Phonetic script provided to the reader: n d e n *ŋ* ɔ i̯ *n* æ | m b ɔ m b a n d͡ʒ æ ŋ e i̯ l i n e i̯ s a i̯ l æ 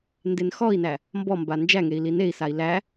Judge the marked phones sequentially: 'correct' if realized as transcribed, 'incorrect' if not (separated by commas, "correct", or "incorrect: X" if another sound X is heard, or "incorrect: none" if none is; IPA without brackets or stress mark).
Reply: incorrect: x, correct